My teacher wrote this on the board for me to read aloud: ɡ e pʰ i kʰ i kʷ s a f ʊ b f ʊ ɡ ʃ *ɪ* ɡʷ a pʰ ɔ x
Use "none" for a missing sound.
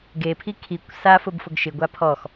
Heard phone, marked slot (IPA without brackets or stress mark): ɪ